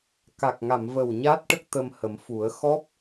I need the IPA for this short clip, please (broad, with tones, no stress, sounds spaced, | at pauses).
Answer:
k a˨˩ k̚ ŋ a˨˩˨ m v ə˨˩ w ɲ a˦˥ t̚ ʈ ə˦˥ k̚ t̪ ə˧ m h ə˨˩˦ m f u˨˩˦ ə̯ x ɔ˦˥ p̚